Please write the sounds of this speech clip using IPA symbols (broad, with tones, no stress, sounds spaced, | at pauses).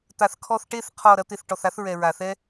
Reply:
t̪ a˨ θ kʰ ɔ˧ θ ʈ e˦˨ θ qʰ ɔ˦˨ ɾ ɐ˦ t̪ e˧ θ ʈ ɔ˨ θ a˦ θ ɹ ɛ˨ ɹ a˨ θ ɛ˦